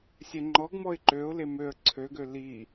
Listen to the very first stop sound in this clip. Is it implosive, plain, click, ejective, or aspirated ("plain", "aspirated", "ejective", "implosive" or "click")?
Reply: click